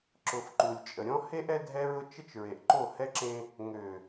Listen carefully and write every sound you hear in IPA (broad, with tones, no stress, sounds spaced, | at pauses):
ǁ ʊ˨ f ǃ u˨ lʲ t͡ʃʼ ə˨ ɾʲ ɔ̃˦ h e˦ ʔ ɛ˦ dʱ ɛ˦ ɹ ʊ˦ t͡ʃ ə˦ t͡ʃ ɹ e˨ ʔ ǃ o˦˨ h ɛ˦ ǁ ẽ˦ | ŋ ø˨